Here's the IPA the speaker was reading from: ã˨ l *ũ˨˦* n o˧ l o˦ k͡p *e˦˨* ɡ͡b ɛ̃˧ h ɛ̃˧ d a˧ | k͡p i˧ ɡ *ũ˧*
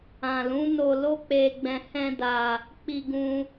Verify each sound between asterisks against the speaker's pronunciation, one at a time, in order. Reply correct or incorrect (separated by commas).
correct, incorrect, correct